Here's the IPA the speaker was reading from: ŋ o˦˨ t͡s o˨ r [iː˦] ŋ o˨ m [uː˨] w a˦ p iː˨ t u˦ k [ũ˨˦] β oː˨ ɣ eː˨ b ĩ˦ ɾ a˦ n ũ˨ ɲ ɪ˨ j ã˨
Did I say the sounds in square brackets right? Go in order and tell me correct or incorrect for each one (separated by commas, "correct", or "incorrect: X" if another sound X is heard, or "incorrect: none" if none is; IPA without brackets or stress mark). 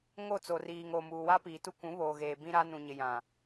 incorrect: iː˨, correct, correct